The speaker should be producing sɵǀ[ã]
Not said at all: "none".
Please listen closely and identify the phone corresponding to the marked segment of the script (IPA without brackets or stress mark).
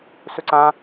ã